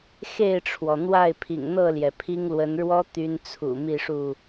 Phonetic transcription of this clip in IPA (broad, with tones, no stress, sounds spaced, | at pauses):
x e˥˨ ɪ̯ ʈ͡ʂʰ w ɔ˩ n̪ w a˥˨ ɪ̯ pʰ ḭ˨˩ ŋ n̪ ɤ˥˨ l j ɛ˩ pʰ i˦ ŋ l w ə˨˦ n ɻ w ɔ˦ t̪ y˦ n t͡sʰ ṵ˨˩ m i˥˨ ʂ u˥˨